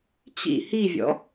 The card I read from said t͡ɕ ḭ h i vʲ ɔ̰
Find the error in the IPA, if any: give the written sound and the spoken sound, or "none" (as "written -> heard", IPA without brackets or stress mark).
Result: none